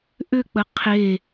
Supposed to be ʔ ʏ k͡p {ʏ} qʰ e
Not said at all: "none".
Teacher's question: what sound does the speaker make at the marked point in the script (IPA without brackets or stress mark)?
ə